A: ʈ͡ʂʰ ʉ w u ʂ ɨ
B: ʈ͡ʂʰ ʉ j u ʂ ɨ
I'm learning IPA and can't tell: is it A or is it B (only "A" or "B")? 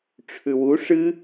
A